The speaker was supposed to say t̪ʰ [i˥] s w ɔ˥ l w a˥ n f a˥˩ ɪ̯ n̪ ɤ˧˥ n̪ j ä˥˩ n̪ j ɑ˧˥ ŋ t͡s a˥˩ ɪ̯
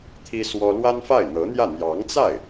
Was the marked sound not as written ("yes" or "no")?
no